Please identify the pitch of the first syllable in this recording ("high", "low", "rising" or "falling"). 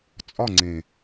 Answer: falling